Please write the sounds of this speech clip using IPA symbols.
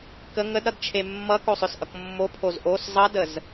kə ŋədɾʌdt͡ʃʰe mːʌkosˤʏsʔʌk mːopʰoz ʔos zˤʌdəz

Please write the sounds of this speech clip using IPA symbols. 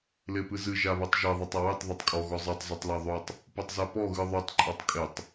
lepɨzɨ ʒaβetˤʒe ðˤatˤawetˤ ðˤetˤkʼɔ ɣɔzˤetˤ zotˤlaðˤotˤ | petˤzapɔ ɣɨðˤotˤ ǃʼatˤkʼetˤ

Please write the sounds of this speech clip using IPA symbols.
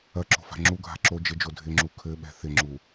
ɐǁo̤ fa̤ŋ͡ǁu ɡʱa̤ǁo d͡ʒɪd͡ʒo dʱɪŋ͡ǁu kʰɘɓɛ̤ θɪŋ͡ǁu

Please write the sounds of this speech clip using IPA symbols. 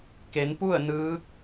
ke˩˧npu˥˨ə̯nɯː˧˥k̚

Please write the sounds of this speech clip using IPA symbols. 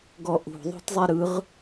ɡɔʔṳ ðˤo̤tzˤeɾɯʁ

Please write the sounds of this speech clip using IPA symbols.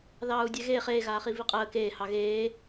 ðɑːu̯dʲɛɣeːχ eːɣaːχi viqʼəː keːhɑ ɣeː

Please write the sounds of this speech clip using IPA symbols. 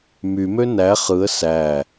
mymø næ χɯə̯ sæ

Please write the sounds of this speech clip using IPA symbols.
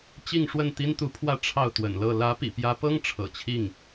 t͡ɕi˥˧ŋʂwə˥˩n t̪i˥nt̪u˧˥pʰwä˥˧ ʈ͡ʂʰɑ˥˩ʊ̯t̪wə̰˨˩nlɤ˥˩ lä˧˥pḭ˨˩pjä˧˥pɤ˥ŋ ʈ͡ʂʰɤ̰˨˩t͡ɕʰi˥˩ŋ

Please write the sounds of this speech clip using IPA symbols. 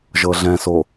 ʒɤɮɛ̃so

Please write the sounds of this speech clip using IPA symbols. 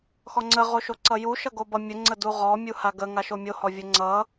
xɔŋ͡ǀəʁoʃo ǀʌju ʃʌɡobʌ mʲəŋ͡ǀə duʁɔmʲu haɡə ŋaʃomʲo hɔvʲəŋ͡ǀʌ

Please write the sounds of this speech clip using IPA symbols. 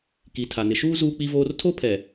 ki˨tʰa˨ nɪ˨ʃuː˦ zuː˦k͡pi˦voː˦r tʰo˦pʰɛ˨

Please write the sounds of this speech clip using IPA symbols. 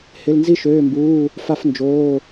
hɪ˧˥˧lnzi˥ʃøː˧˥˧mbuː˧˥˧ | fa˥fnd͡ʒoː˧˥˧

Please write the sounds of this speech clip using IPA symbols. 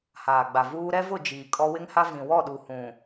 haː˨ɡ͡ba˨vuː˦ ɾɛ˦vʊ˦˨ d͡ʒiː˨ kʼɔ˦ wɪ˦ŋha˦ vĩ˨ wɔ˦˨ɗu˨hũ˨

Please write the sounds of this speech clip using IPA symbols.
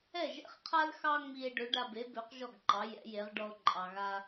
ɛ˥˩ʒɛ̰˥˩χqʰa˥l xɑ˥ŋ͡mi˧e̯ ɖø˩˥ɖa˧be˩˥bø˩˥q ʒɔ˥˩ɡǃɑ˩˥ jɛ̰˩˥je˩˥ʁ ɖɔ˧o̯ǃʼɑ˩ɣa˧

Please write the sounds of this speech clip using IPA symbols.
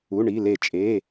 u˩˧˩ɳi˩˧˩ le˨˩˦t͡ʃʼe˩˧˩

